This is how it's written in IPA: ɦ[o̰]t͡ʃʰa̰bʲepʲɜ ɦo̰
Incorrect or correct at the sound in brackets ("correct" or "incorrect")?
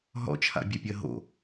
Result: incorrect